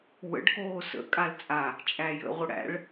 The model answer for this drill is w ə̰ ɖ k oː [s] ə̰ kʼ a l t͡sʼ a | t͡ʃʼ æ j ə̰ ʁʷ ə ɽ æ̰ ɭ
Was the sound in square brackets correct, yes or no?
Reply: yes